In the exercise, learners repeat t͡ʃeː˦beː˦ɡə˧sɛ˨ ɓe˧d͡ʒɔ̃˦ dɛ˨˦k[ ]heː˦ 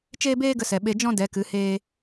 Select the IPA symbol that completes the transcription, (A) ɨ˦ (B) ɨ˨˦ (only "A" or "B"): B